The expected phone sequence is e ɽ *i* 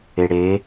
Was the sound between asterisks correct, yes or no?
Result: no